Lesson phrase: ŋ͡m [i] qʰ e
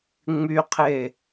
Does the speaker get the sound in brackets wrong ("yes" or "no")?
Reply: yes